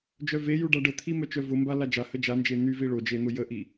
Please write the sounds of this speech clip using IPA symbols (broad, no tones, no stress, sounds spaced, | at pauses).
d͡ʒ œ v e j u ɖ a ɖ ə t̪ʰ i m œ t͡ʃ œ v ʊ m b a l a d͡ʒ a h ə d͡ʒ a n d͡ʒ e n̪ y v i ɭ o d͡ʒ e n̪ ʊ j ə ʔ i